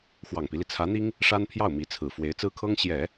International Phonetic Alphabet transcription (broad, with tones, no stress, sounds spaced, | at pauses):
x w ɑ˨˩ ŋ p i˦ l i˩ t͡sʰ ä˧˥ n̪ i˥ ŋ | ʂ a˥ n pʰ j ɑ˥˩ ʊ̯ m i˧˥ t͡sʰ ɹ̩˨˩ f w e˧˥ ɪ̯ t͡s ɹ̩˥ kʰ ɤ˥ ŋ ɕ j ɛ˨˩˦